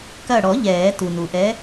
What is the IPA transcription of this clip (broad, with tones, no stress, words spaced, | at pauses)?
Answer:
kɐ˧˩ɽɔ˨˩˦ ʎɛː˨˩˦ tu˩nu˩ʔɛ˨˥